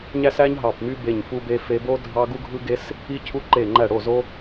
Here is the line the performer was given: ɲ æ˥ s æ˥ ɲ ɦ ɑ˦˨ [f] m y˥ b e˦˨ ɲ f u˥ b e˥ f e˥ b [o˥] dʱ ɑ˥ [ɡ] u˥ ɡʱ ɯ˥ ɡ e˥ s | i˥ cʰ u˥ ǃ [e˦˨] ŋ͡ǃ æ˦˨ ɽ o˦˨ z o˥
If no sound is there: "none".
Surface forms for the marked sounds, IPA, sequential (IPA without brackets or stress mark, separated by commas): p, o˥, ɡ, e˦˨